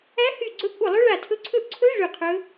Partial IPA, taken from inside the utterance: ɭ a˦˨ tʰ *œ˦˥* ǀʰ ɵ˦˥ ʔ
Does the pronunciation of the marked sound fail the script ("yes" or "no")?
yes